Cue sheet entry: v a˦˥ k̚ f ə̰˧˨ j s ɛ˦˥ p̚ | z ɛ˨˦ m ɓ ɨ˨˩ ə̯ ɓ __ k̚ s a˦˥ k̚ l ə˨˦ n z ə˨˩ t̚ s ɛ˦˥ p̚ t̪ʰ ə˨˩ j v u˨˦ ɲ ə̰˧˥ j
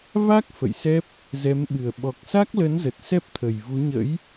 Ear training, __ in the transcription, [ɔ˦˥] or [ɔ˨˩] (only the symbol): ɔ˨˩